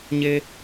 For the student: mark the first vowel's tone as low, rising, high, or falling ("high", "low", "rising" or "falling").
high